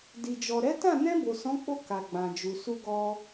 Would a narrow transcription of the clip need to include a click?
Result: no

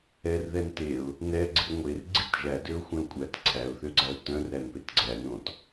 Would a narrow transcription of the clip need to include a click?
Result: yes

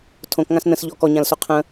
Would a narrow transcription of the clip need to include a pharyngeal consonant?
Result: no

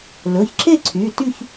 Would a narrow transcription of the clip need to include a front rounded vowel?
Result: yes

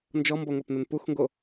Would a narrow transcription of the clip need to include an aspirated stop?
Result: no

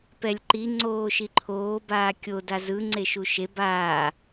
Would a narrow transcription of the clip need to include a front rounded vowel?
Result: no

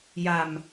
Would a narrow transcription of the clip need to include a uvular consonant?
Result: no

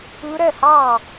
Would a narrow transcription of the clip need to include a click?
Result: no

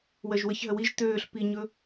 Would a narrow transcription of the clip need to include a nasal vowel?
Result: no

